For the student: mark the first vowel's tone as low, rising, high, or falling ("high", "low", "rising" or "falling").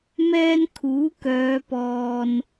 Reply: high